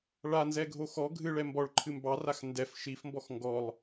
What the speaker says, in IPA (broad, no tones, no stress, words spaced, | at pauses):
ɭanzɛɡʱo xɔ ɡʱɨɭɛ mbɔɭǃʰɨ mbɑrax ndɛf ʃifmbɔx ŋɡɔlˠ